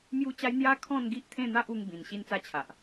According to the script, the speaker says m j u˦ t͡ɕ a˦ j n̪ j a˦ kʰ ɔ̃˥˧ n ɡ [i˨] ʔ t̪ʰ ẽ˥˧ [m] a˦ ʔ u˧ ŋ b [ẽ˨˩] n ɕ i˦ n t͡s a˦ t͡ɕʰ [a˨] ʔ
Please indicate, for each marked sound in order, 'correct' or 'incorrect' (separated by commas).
incorrect, incorrect, incorrect, correct